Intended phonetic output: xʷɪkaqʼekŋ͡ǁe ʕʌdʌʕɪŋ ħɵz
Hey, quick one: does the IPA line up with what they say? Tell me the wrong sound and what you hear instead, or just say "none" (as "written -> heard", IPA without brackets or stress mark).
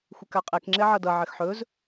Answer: ŋ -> x